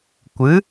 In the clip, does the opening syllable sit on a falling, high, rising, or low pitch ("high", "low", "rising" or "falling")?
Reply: rising